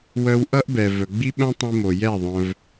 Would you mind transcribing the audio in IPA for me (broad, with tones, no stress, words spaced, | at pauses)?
wœ˧wʔʌ˦ʔ bɛ˨ vœ˨ɡ͡bi˦ɓœ̃˦ tˤĩ˧mo˨ jɛ˦˨ðˤœ̃˧v